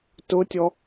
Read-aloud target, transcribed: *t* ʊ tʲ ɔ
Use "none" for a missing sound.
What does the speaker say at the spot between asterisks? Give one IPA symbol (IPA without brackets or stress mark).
t